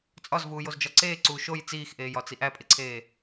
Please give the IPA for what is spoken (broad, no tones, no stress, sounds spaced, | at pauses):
t͡sʼ ɒ z v uː j o z d͡ʒ ɒ ǀ eː ǀ uː ʃ o j t͡s iː x ʔ eː j ɒ t͡s i ʔ æ pʼ e ǀʰ eː